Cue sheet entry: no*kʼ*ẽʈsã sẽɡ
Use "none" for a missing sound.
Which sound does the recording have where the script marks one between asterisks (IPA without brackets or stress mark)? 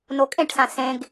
kʼ